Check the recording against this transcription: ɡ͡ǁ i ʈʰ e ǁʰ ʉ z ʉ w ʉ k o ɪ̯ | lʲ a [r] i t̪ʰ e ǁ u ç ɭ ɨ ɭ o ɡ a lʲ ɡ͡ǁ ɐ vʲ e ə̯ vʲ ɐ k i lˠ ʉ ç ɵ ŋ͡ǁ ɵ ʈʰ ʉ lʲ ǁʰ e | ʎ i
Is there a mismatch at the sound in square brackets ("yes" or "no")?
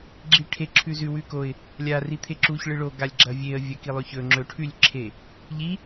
no